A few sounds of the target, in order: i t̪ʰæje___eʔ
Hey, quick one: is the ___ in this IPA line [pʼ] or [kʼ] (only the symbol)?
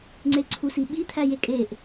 kʼ